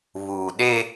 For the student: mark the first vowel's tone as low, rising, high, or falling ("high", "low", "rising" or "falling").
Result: low